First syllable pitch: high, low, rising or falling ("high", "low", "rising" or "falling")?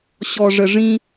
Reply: low